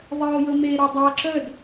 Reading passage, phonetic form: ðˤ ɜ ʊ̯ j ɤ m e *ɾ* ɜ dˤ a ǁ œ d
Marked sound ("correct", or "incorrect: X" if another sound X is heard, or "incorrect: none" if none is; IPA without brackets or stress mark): correct